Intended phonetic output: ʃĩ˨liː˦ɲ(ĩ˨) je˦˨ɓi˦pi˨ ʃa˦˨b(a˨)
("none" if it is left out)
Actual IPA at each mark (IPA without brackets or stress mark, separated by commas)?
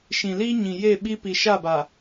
ĩ˨, a˨